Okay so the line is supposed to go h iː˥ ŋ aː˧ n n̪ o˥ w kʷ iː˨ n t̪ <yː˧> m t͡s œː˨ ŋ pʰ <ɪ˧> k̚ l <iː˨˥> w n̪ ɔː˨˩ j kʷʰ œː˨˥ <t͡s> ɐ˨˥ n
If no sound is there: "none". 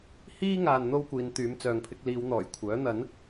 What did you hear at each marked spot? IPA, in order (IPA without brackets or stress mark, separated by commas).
yː˨˧, ɪ˧, iː˨˧, n̪